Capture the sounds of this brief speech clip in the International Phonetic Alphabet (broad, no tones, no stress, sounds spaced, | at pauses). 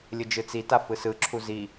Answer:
lʲ ɯ d͡ʒ ɯ t͡s i t a f ɯ s ɯ ǁʰ u z i